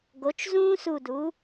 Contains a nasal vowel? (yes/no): yes